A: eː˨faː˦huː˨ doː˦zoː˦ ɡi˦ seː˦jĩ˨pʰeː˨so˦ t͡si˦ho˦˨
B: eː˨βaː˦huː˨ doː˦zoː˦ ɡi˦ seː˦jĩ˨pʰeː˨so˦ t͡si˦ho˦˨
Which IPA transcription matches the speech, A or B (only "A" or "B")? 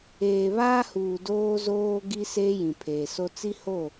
B